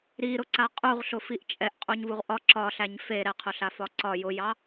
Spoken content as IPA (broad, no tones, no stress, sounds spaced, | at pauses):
ɾ i ɾ ʊ ǀ a qʼ u ʁ ɬ ʊ f i ʔ t͡ʃʼ ɛ ʔ qʼ u ɲ v u ʁ ʔ ɒ ǁ ɒ ɬ æ ɲ f e ɾ ɛ qʰ ʊ ɬ a f ɒ ǀ ɒ j ʊ j ɑ